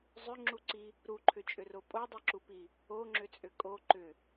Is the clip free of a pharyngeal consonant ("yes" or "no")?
yes